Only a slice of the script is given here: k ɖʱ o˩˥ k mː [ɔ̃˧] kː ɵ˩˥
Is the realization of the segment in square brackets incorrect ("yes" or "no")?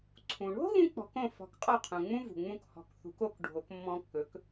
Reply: no